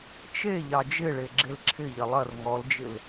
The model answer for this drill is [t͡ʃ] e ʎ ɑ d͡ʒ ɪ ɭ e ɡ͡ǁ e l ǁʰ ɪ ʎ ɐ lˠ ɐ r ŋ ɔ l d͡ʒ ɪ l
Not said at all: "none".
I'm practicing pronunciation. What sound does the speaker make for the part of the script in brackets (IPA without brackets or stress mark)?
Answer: t͡ʃ